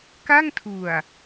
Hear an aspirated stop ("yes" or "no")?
yes